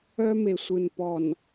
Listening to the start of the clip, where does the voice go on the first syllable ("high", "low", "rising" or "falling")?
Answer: high